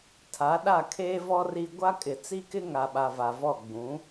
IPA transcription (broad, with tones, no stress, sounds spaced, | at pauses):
tʰ a˨˦ ɗ a˦˨ kʰ eː˦ v ɔ˦ r i˦ ɡʷ a˦ kʼ ɪ˨ t͡s i˦ k ɪ˦ ŋ a˨ ɓ a˨ v a˨ v ɔ˦˨ ɡ͡b ũ˨˦